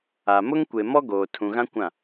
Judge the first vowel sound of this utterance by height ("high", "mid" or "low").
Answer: low